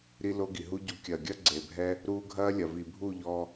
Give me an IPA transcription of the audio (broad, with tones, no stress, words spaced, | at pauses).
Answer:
ɾi˦lo˦ɡi˨ ɦu˧ɟu˨˦ kʲɐː˨ɡʲɐ˦ɡ͡ǀe˨bʱɛ˦ | ɾuː˧ɡʱɐː˦lʲɐ˨ vi˨bʱu˦˨ʎɔ˧